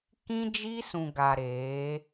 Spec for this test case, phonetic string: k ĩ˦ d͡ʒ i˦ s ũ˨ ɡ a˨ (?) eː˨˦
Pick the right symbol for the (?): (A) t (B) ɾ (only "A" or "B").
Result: B